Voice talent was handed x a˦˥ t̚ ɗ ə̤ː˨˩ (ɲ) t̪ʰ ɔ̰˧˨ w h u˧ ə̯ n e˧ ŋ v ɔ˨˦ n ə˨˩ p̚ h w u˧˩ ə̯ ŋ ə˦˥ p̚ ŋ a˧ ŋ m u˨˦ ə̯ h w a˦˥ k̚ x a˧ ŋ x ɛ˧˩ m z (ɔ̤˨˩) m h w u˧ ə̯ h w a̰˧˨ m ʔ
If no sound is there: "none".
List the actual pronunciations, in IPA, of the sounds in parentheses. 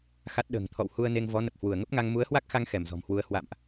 ŋ, ɔ̤˨˩

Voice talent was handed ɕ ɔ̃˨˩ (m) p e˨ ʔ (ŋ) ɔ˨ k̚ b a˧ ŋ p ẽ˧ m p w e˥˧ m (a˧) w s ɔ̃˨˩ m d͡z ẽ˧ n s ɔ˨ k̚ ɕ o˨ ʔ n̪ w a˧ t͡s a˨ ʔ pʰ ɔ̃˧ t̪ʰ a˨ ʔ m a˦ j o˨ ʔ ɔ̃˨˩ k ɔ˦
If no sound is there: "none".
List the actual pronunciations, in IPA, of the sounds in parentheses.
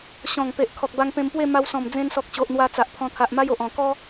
ŋ, kʰ, a˧

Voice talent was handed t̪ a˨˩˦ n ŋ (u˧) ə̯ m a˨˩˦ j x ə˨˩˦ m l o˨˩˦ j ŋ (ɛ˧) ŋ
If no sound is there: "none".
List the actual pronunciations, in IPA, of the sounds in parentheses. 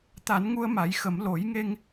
u˧, e˧

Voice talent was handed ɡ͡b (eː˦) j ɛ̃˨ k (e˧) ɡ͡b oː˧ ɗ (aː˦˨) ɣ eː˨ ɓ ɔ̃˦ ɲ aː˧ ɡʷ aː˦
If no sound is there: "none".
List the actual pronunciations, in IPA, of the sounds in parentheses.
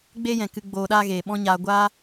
eː˦, ɨ˧, aː˦

